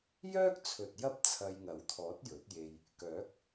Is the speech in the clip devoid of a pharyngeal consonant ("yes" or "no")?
yes